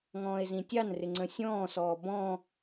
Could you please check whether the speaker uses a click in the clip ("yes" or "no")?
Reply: yes